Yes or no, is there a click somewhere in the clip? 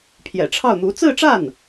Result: no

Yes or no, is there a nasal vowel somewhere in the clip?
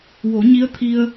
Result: no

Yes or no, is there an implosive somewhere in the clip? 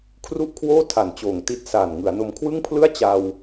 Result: no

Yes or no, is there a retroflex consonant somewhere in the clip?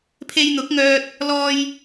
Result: no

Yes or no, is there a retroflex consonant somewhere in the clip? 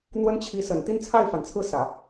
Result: no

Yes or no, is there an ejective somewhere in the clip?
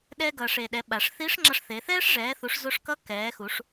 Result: no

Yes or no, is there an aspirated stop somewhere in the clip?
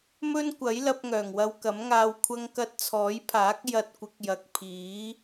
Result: yes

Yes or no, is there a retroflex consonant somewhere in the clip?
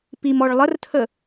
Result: yes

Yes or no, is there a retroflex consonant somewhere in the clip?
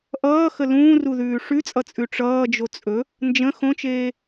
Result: yes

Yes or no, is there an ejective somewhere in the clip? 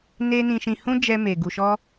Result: no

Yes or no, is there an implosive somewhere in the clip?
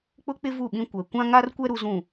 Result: yes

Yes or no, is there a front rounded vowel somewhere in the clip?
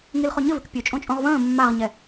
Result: yes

